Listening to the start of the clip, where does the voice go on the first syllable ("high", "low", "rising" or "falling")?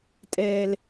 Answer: low